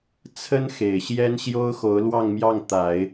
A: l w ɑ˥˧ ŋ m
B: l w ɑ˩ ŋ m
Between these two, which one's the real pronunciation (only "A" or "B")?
A